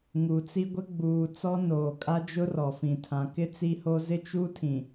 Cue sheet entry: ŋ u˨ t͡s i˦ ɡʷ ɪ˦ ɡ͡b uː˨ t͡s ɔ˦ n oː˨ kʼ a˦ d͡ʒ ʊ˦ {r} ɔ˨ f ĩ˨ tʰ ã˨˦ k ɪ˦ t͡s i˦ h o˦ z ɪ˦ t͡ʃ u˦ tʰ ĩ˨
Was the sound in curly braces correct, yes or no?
yes